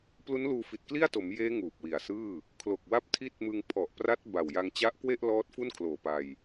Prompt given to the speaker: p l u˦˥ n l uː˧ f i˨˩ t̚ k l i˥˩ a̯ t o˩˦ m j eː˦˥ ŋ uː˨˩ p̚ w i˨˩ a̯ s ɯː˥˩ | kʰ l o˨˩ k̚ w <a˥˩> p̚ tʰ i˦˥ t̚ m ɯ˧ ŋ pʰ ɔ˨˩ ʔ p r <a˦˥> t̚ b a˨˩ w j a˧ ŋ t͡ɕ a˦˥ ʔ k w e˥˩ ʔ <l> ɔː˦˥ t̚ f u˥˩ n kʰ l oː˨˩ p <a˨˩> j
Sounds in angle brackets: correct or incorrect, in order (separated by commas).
incorrect, correct, correct, incorrect